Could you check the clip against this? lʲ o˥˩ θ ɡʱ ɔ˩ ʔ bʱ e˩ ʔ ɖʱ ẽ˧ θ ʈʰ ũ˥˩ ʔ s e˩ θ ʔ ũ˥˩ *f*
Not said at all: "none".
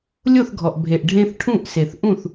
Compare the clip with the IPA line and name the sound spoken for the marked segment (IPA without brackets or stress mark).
θ